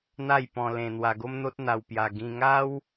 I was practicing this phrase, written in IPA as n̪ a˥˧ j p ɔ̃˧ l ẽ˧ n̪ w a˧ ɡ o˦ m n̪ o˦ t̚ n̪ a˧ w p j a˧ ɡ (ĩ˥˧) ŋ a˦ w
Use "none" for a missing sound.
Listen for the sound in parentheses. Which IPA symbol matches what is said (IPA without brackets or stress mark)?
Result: ĩ˧